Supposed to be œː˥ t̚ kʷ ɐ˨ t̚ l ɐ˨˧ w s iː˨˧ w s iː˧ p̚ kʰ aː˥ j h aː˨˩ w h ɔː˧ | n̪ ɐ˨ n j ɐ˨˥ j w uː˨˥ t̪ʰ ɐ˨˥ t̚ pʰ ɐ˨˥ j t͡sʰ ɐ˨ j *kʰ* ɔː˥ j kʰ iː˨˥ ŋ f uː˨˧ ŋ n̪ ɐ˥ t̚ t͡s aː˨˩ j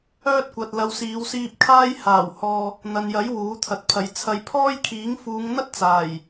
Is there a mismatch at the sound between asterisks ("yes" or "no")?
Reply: yes